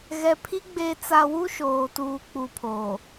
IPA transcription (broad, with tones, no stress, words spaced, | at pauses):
ɣɛ˨pʰi˦ ɡ͡be˨t͡sa˨ wu˦ʃoː˨tuː˨ k͡pu˨pʰo˨